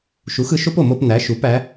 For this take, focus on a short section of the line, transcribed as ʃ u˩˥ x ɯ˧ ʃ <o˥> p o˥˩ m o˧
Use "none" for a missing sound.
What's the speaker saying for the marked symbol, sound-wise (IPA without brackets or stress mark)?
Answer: o˥